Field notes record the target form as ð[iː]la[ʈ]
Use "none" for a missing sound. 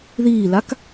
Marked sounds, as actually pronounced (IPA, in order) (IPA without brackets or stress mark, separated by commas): iː, k